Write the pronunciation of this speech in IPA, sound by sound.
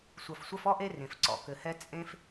sʷɐ˨fsʷɐ˦fɔ˥ʔe˦ rẽ˩fǀɔ̰˩ kɘ˨hɛ˦ t͡sʼẽ˦f

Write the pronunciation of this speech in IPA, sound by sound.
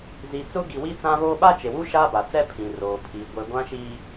zi˨t͡sʊ˦ ɡi˨wi˦t͡sã˦βo˦ ɓa˦t͡ʃe˨wu˦ ʃa˦ba˨t͡sɛ˦ pʰĩ˨roː˨pʰi˨ ɡʷe˨ɡʷã˦ʃiː˦

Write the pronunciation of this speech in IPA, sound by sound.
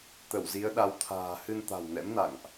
t̪ə˧˩wzi˨˦ə̯ ɗa˨˦wt̪ʰa̤ː˨˩ hɨ˧nt̪a̤˨˩wnɛ̰˧˥mna̰˧˨ŋʔ

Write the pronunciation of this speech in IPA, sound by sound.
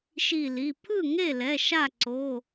ʃi˧˩li˩˧˩ pʰɯ˥˩ŋe˥˩lɛ˩˧˩ ʃa˥˩ǀo˩˧˩

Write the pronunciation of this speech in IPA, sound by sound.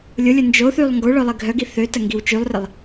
lʲʊlʲʊ nd͡ʒoθylˠ ŋɡo ɭœlˠiɡʱœɡi θøtɐ ŋɡiwt͡ʃylˠrɪlˠ

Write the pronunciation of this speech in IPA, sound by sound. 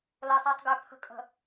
lo˨tˤu˨tˤ ɡø˨ pʰə̤˨kʼə̤˨

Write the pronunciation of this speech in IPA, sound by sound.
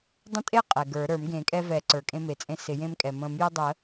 dˤə̃˦tʼe˦ qʼɛ˩ɡə˞˨˩˦ ɾə˞˨˩˦mɡẽ˨˩˦kʼɛ˦ vɛ˨˩˦ ǀə˞˩kʼẽ˦me˩t͡sʼẽ˦ sɪ˨˩˦jẽ˦mkʼɛ˩ mə̃˨˩˦mjə˦dˤə˨˩˦

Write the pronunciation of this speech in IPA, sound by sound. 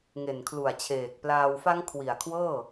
ŋe˨˩nkʰlu˨˩a̯t͡ɕʰeː˨˩k̚plaː˧w fa˦˥ŋkʰwi˨˩a̯kʰwɤː˥˩

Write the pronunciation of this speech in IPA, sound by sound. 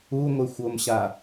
uŋʷexʷomɕa

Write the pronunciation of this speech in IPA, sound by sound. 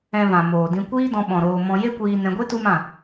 ɛ̃˧vã˨ moː˨dĩ˧ kʷiː˦dɔ̃˧ɓɔ̃˨ ɾoː˧ mɔ̃˧ je˦kʷiː˧nɛ̃˧ɡʷe˦ tu˦mã˦˨

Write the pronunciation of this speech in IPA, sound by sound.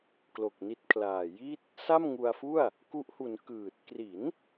klo˨˩k̚ni˦˥t̚kʰlaː˨˩ ji˥˩t̚ | sa˥˩mŋu˧a̯ fu˥˩a̯ | ku˦˥ʔhu˩˦n kɯː˨˩t̚ kri˩˦n

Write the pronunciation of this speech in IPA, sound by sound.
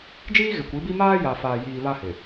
d͡ʒiː˦ɣɪ˨kʷi˨˦bi˦ maː˦ja˨ faː˨jiː˨ βa˦hɪ˨

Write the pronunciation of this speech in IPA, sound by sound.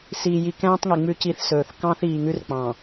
siː˨ji˨ kɛ̃ː˦tˤŋi˨ ŋ͡mʉ˦ci˦θsɵː˨θ kɑ̃ː˦θiː˨ ŋʉ˦rk͡pɑ̃˨

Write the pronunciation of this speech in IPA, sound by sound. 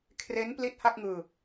kʰre˦˥n pli˦˥t̚ ha˥˩k̚ŋɯː˧

